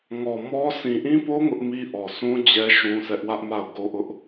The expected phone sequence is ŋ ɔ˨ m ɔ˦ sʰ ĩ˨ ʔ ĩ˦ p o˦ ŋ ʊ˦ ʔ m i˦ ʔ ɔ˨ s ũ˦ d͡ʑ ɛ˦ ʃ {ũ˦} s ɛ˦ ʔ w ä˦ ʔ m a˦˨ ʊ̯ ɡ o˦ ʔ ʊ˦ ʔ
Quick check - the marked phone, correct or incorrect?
correct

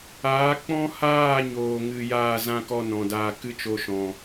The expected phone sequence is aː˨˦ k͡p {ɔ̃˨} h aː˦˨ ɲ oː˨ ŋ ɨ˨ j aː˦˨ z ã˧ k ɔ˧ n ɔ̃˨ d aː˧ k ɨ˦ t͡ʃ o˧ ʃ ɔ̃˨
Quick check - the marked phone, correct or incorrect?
incorrect: ɔ̃˦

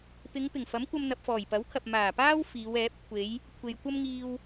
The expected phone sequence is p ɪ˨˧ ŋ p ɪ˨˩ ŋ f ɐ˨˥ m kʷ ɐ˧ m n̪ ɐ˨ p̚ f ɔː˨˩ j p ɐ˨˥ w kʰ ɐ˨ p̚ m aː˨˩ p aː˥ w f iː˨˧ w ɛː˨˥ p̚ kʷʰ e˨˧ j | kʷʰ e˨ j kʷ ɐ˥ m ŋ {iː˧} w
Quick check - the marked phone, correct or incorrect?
correct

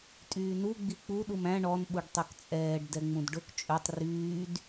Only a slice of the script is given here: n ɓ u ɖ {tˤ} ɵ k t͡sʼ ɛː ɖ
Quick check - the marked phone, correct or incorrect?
correct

